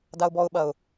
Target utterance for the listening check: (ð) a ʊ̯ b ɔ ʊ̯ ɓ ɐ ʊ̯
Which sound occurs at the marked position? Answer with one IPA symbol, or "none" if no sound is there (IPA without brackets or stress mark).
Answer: d